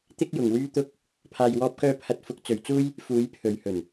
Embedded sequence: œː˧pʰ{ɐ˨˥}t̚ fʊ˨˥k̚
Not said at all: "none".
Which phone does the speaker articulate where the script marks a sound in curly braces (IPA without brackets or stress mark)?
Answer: ɐ˨˥